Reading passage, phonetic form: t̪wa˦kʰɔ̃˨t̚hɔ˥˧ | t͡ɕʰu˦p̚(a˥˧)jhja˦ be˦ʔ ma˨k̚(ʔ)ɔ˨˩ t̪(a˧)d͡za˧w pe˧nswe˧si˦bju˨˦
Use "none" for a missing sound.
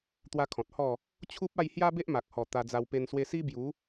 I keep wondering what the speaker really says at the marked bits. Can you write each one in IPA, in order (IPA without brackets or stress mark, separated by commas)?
a˥˧, h, a˧